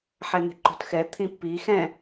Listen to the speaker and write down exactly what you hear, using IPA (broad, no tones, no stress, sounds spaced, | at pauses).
ħ ɛ n̪ e̤ ǃ o̤ t x ɛ t̪ʰ ĩ pː i x ɛ̃